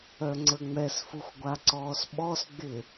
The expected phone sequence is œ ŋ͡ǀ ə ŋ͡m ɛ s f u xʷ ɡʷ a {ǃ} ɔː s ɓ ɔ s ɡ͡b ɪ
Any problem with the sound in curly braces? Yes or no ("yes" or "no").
yes